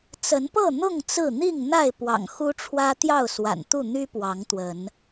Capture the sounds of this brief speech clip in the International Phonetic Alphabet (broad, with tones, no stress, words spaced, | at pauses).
t͡sə˨˦npɤ˥˨ n̪ʊ˥˨ŋ t͡sɹ̩˥˨ n̪i˥˨ŋ n̪a˥˨ɪ̯ pwɑ̰˨˩ŋxu˦ʈ͡ʂʰwä˦ t̪jɑ˥˨ʊ̯swa̰˨˩nt̪u˥˨ n̪y˦ pwɑ˨˦ŋt̪wə˨˦n